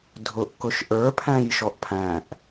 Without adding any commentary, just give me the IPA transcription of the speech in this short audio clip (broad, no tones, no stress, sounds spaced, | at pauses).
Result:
dʱ ʊ ʔ k ʊ ʃ ʔ ə˞ pʰ æ̃ j ʃ ɔ ʔ pʰ æ̃ ʔ